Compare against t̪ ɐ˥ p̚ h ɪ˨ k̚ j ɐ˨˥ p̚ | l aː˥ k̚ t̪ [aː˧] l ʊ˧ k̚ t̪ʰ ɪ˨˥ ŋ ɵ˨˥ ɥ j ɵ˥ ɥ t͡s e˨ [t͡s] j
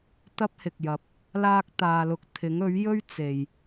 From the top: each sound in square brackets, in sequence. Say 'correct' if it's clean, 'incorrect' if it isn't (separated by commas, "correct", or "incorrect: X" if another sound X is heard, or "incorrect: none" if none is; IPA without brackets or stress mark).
correct, incorrect: none